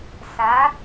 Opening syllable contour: rising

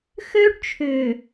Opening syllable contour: high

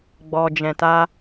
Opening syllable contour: low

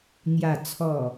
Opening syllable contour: low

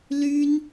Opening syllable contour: high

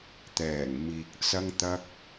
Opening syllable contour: low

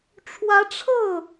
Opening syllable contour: rising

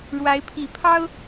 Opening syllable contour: rising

